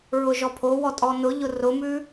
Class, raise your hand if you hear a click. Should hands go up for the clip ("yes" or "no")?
no